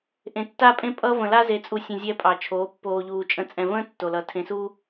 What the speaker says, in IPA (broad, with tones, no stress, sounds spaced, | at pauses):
ʔ ẽ˨ tː a˦ pʼ ẽ˦ pʼ ʌ˦ v ə̃˨ l a˦ z e˨˦ t͡sʼ u˨ sʲ ə̃˨ zʲ ɛ˦ pʼ ɑ˨ t͡ʃʰ oː˨˦ pː oː˨ ʎ uː˨ t͡ʃʼ ə̃˨ t͡sʼ ɛ̃˨ v ə̃ː˦ tː o˨ l ʌ˨ tʰ ẽ˨ s u˦